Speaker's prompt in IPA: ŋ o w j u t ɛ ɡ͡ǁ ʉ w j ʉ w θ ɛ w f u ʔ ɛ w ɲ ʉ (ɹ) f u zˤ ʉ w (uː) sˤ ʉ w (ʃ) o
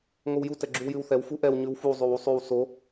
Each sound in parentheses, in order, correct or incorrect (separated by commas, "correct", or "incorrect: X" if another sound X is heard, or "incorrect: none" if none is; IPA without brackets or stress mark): incorrect: w, incorrect: u, incorrect: s